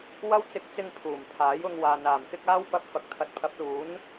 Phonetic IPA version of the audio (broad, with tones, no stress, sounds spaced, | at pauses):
w ɐ˥ w t͡s ɪ˧ k̚ t͡s ɪ˧ ŋ pʰ uː˨˩ m pʰ aː˨˥ j ʊ˧ ŋ w aː˨ n aː˨˩ m k ɪ˥ k̚ aː˥ w p ɐ˧ p̚ f ɐ˨ k̚ t̪ʰ ɐ˨˥ t̚ pʰ ɐ˨˥ p̚ l uː˨˥ n